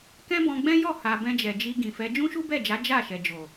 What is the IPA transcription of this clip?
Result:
k ɛ̃˦ b ɔ̃˧ ɡ͡b ɛ̃˦ j ɔ˦˨ h a˨ b ɛ̃˧ d͡ʒ ɛ˨ d͡ʒ i˧ ɡ ĩ˨ f ɛ˨˦ d͡ʒ ũ˦ ʃ u˦ b ɛ˦˨ d͡ʒ a˨˦ d͡ʒ a˦˨ ʃ ɛ˨ d͡ʒ o˨

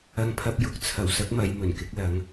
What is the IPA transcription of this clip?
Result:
ɐ˥ ŋ pʰ ɐ˥ p̚ j ʊ˨˥ k̚ t͡sʰ ɐ˨˩ w s ɐ˥ k̚ m ɐ˨˧ j m ɵ˨˩ n k ɪ˨˥ k̚ l ɐ˨˥ ŋ

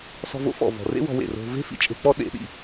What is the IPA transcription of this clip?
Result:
s ɔ̤˧ v o̰˦ f ɔ̰˨ v ɔ̤˨ r ḛ˦ w ɔ̤˧ w ḛ˨ r o̤˧ v e̤˦ f ḭ˦ t͡ʃʼ e̤˧ k͡p ɔ˦ ɗ ḛ˦ ɗ ḭ˧

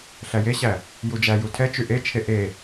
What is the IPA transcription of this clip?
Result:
ɬ æ j e ɕ æ | j u d͡ʒ æ j u tʰ ɛ t͡ʃ y ʔ e t͡ʃʰ e ʔ e

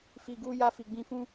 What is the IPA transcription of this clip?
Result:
f i˨ ɡ uː˦ j a˦ f i˨ ɡ͡b ĩ˦˨ f ũ˦

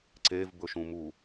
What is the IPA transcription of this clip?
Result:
ǀ e v b ɵ ʃ ũ m u

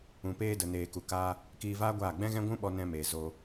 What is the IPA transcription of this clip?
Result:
ũ˨ p eː˧ d ə˨ n eː˨ k u˨ k aː˧ | k iː˧ v aː˦ ɡʷ aː˦˨ ɡ͡b ɛ̃˦ ɣ ɛ̃˦ ɡʷ ũ˦ ɓ ɔ˧ n ɛ̃˧ m e˨ z o˧

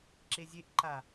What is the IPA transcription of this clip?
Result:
ǁ e zʲ e ʔ ǃ a

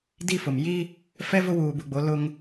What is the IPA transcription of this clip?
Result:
d i˦ f ʊ˨ m j i˦ | f ɛ˦ v ʊ˦ w uː˨ b u˨ ɡ͡b o˨˦ l ʊ˦ ŋ

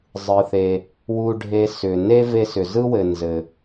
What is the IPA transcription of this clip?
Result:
zˤ ɯ˩ θ e˩ | w u˧ ɖʱ e˧ s ʏ˩ n e˥ v e˧ s ʏ˩ z ɯ˥ w ɘ˩ n z ɘ˩

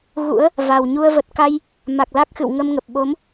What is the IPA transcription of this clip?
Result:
ɣ ṵ˧˥ ə̯ | v a˨˩ w ɲ u˧ ə̯ v ə˨˩ t̚ k a˧ j | m a˨˩ k̚ l a˦˥ k̚ x ɨ̰˧˨ w ŋ ə˧ m ŋ ə˨˩ p̚ ɓ o˨˦ m

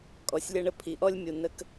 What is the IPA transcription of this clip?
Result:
kʼ ɔ˩ sʲ lʲ ʌ˧ ɳ ə˧ pʰ i˩ ʔ ɔ˥ lʲ mʲ u˩ n ə˧ k

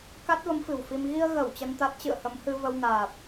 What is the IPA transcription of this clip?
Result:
k a˦˥ t̚ v ə˨˦ m f ɨ̤˨˩ w f i˧ m ɣ i˧ ə̯ ɣ ə˧˩ w t͡ɕ ə˧ n t̪ a˦˥ t̚ t͡ɕ ɨ̰˧˨ ə̯ h ə˨˦ m h ɨ˧ v ə˧ w n aː˨˩ p̚

